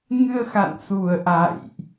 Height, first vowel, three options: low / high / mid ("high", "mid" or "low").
high